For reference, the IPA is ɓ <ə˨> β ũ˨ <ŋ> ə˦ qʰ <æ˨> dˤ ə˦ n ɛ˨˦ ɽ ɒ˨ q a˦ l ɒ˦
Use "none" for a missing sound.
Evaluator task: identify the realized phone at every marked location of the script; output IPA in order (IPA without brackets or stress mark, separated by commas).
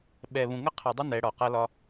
ɛ˨, ŋ, æ˨